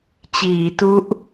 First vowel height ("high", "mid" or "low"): high